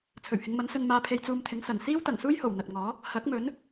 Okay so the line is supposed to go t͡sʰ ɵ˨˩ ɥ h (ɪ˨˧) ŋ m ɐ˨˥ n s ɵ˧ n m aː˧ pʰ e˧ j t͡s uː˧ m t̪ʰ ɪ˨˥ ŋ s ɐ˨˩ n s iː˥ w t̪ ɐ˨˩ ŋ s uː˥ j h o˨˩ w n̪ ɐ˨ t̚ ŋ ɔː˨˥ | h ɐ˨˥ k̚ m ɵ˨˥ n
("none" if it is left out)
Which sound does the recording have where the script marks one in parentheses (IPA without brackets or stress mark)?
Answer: ɪ˨˧